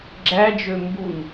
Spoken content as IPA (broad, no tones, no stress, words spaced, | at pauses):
ɡ͡ǁæd͡ʒø mbun